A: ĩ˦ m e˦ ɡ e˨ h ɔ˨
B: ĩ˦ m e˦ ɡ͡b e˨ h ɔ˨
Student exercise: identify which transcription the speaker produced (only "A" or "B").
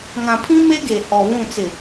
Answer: A